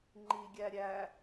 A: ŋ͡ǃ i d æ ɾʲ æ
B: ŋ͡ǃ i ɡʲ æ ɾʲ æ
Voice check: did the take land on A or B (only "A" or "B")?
B